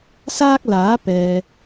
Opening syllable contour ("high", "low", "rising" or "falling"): high